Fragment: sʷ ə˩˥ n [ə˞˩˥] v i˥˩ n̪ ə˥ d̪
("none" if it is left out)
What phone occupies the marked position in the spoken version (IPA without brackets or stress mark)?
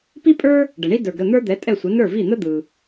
ə˞˥˩